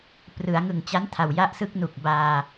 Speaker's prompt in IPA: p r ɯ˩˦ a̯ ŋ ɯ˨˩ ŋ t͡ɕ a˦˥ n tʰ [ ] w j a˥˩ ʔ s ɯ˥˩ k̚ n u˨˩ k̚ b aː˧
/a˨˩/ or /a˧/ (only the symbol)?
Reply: a˨˩